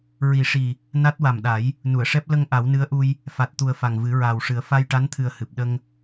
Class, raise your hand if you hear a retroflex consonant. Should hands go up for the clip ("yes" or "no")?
yes